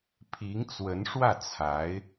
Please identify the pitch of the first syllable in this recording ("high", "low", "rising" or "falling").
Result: rising